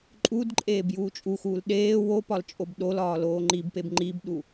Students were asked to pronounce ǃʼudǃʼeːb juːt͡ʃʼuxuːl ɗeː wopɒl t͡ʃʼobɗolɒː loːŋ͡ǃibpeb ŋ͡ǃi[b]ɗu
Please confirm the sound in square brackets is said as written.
yes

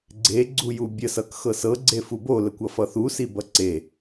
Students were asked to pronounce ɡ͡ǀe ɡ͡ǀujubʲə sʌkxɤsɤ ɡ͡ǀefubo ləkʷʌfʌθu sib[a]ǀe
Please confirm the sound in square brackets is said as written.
no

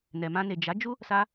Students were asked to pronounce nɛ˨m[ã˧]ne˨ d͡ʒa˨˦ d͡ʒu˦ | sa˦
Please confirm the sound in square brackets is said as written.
yes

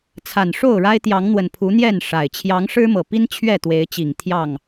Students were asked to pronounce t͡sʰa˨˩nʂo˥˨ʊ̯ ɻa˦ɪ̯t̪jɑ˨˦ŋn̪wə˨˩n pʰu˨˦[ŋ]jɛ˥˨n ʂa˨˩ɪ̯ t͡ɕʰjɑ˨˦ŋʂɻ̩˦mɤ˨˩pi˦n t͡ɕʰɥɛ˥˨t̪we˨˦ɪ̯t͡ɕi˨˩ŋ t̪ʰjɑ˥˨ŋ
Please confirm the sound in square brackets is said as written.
no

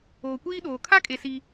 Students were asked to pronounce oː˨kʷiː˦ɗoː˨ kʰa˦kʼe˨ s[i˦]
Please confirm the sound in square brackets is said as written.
yes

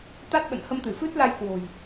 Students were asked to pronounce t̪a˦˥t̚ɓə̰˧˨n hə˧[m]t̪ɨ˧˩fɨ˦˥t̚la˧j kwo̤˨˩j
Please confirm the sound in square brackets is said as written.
yes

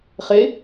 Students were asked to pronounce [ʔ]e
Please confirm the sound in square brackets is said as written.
no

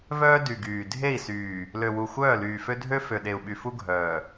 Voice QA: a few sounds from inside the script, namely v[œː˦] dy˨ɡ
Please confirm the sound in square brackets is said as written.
yes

